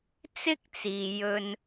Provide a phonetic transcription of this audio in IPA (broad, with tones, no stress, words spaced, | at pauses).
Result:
t͡sɪ˥k̚t͡siː˨ jɵ˧n